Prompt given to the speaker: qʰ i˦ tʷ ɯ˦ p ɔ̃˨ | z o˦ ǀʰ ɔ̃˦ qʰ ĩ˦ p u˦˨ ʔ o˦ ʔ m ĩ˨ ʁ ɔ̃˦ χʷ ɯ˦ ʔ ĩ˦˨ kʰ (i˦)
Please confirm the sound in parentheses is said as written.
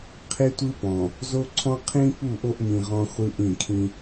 no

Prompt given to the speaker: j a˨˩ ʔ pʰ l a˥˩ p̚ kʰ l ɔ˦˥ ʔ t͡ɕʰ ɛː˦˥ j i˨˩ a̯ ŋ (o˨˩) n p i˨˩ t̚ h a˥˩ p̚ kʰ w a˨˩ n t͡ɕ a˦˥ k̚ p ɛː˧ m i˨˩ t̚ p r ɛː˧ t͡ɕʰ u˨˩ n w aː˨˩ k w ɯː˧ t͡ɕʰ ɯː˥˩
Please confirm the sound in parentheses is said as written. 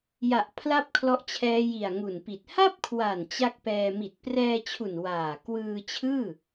no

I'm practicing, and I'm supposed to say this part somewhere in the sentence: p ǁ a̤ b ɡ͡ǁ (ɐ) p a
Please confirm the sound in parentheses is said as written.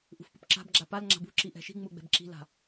no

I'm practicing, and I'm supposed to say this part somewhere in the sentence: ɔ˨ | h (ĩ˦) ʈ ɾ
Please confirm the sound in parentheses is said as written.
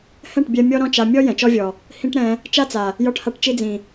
yes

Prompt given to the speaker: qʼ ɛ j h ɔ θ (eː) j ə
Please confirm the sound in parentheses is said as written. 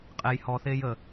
yes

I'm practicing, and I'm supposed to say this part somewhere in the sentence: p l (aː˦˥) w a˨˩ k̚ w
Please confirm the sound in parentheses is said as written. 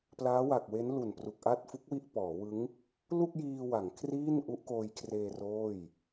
yes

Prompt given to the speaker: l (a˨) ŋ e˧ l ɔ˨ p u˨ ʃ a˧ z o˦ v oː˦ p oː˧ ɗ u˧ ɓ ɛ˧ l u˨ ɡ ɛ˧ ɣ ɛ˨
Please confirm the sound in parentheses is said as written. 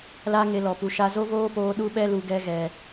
no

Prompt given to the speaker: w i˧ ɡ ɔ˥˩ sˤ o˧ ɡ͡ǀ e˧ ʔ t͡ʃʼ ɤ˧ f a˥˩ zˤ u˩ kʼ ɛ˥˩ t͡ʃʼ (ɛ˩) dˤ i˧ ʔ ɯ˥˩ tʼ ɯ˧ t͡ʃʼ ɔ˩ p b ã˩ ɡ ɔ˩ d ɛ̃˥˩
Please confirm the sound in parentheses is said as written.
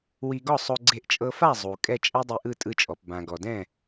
no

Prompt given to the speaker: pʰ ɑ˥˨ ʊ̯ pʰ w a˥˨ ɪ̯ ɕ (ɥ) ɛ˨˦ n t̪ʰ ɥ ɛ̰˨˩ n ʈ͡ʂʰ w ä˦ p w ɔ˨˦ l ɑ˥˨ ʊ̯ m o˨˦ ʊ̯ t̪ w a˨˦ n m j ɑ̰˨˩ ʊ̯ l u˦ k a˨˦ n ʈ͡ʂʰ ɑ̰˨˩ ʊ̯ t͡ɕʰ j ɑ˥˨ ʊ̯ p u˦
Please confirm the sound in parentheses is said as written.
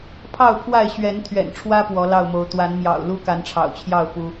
yes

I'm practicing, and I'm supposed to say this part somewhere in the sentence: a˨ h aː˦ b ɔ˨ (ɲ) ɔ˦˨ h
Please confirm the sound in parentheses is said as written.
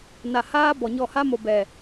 yes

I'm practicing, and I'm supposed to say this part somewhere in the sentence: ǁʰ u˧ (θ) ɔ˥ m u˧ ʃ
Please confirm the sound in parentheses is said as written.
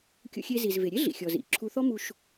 yes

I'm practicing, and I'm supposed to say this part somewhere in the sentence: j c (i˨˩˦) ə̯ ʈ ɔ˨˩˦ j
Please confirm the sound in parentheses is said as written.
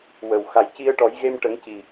no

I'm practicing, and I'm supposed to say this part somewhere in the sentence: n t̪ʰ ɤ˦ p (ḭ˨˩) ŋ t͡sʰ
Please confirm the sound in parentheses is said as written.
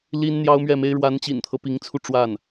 no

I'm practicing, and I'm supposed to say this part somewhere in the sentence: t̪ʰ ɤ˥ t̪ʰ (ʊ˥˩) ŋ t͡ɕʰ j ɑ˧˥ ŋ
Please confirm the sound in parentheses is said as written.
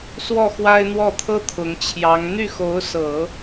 no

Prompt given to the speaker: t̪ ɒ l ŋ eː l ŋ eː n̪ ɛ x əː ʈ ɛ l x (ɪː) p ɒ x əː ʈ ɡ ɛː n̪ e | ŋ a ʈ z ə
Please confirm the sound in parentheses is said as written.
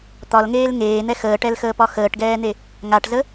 no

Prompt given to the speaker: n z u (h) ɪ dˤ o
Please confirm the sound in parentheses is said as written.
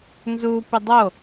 no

